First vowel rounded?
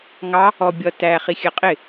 no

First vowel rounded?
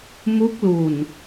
yes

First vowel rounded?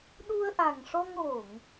yes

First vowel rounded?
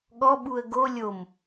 yes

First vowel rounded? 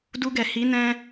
yes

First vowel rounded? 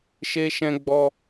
no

